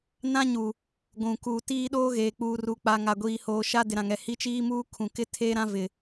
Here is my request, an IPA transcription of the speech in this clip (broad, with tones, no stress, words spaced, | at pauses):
nã˦ɲu˨ | ɡʷũ˨ ku˨ tiː˦ɗoː˦ ɣeː˨k͡puː˨ru˨k͡pa˨ ŋa˨ɡʷiː˨hoː˨ ʃa˦dɪ˨ɾã˨ŋɛ˨ hi˦t͡ʃiː˦muː˦ kʰũ˨ kɪ˦ tʰeː˦ɾã˦ vɪ˨